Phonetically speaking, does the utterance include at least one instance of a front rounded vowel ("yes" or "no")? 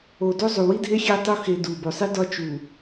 no